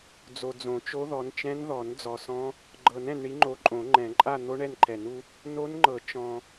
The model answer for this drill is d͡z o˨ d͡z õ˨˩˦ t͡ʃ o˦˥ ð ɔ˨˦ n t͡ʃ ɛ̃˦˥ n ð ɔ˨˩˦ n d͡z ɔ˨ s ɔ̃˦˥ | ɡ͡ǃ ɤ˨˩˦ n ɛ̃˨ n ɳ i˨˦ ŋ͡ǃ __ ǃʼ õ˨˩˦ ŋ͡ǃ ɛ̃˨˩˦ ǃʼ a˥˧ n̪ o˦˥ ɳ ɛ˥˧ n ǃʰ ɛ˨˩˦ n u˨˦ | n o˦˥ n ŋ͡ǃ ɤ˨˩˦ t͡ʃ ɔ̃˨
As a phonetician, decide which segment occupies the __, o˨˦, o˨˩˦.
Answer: o˨˦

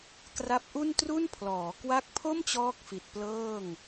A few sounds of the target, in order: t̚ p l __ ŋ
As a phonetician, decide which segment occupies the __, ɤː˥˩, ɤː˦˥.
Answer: ɤː˥˩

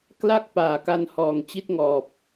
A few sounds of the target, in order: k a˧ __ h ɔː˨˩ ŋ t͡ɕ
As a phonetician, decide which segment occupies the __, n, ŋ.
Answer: n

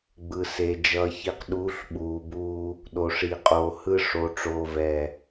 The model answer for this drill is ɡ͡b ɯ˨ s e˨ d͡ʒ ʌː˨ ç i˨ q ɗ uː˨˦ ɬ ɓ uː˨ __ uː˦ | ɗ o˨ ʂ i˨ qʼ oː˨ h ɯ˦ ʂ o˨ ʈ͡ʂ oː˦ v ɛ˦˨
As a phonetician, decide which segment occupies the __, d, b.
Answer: b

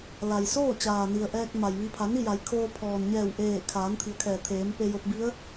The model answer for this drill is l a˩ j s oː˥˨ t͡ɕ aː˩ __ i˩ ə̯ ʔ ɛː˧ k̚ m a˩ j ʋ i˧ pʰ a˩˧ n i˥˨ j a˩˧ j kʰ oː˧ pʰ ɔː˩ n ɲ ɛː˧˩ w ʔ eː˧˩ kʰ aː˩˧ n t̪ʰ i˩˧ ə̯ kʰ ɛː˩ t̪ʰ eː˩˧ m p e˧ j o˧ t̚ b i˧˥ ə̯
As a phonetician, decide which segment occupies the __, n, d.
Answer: n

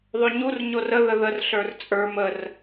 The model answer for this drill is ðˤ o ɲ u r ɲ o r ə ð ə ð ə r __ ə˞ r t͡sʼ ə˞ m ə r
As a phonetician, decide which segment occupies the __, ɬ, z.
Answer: ɬ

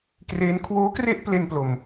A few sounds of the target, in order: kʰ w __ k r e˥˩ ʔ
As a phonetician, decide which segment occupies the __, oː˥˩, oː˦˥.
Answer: oː˦˥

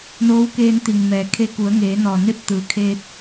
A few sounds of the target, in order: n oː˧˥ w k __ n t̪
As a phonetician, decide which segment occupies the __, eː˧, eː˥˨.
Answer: eː˧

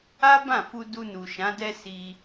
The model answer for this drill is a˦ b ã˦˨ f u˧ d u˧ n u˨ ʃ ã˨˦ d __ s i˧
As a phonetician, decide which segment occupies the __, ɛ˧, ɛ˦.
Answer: ɛ˦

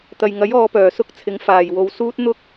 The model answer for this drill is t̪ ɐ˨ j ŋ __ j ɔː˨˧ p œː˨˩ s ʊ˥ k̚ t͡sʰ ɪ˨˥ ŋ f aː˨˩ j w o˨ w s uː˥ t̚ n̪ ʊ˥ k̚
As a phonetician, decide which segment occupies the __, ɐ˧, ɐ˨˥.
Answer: ɐ˨˥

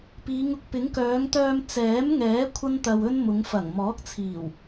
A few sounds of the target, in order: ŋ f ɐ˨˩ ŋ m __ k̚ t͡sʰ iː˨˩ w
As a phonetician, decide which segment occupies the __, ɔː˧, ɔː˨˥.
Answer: ɔː˨˥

